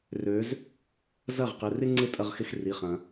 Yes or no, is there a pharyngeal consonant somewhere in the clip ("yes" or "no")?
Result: no